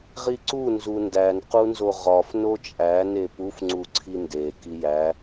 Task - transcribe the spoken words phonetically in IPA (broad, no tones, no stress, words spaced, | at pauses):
ʁiǀu nzundæn qunzoʁɒf not͡ʃʼæ nepuf ŋ͡ǀuǀʰinde kijæ